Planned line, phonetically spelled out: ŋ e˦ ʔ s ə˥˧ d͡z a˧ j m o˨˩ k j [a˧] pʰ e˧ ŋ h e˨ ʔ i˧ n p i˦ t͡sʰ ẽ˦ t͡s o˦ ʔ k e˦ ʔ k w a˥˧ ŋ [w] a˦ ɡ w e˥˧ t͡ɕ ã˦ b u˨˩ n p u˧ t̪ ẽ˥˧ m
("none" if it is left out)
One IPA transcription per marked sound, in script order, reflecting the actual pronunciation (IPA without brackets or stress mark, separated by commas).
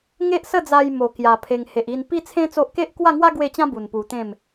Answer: a˧, w